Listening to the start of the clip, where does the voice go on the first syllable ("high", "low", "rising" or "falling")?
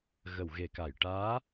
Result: low